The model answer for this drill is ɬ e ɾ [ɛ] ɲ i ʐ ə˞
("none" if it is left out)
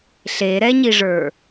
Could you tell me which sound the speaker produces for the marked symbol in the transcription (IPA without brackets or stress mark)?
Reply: ɛ